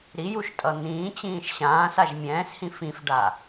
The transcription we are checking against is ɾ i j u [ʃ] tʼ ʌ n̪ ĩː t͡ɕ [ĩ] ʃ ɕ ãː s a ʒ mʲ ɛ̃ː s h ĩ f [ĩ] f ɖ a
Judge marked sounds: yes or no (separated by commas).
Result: yes, no, yes